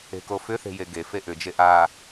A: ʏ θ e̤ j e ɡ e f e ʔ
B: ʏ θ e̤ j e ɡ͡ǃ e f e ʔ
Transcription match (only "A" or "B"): A